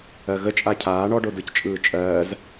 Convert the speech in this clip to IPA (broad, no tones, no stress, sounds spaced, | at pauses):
ɜ ɣ ə t͡ʃʼ a cʰ aː ɳ ɔ ɖ o d ɯ c t͡ʃʼ ɯː t͡ʃʼ ɜː z